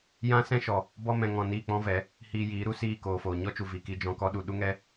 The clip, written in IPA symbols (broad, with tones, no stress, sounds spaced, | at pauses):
j ã˦ s ɛ̃˦ ʃ ɔ˨ | b ɔ˧ m ɛ̃˨ ŋ ɔ̃˨ n iː˦˨ k͡p ɔ̃˦ v ɛ˨˦ | h iː˧ j iː˨˦ ɾ u˧ s iː˦˨ k oː˨ f oː˨ ɲ ɔ˦ t͡ʃ u˨ v i˨ k i˧ d͡ʒ ɔ̃˧ k ɔ˦ ɗ u˧ ɗ u˦ ŋ ɛ˦